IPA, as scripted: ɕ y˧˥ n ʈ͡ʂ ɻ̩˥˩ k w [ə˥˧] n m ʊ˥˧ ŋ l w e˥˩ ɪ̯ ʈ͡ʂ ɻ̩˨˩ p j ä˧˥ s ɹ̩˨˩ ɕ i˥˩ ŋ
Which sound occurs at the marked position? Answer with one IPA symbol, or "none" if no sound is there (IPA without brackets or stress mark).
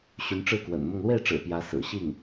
ə̰˨˩